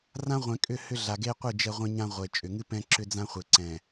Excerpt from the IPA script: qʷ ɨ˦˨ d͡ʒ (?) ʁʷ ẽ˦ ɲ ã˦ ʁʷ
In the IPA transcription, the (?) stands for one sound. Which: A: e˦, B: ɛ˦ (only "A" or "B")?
B